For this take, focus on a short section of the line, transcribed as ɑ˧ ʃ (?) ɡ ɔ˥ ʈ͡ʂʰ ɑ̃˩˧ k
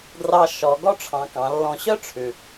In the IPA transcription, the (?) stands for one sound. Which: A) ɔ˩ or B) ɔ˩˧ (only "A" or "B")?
B